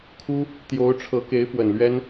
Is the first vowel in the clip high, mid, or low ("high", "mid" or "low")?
high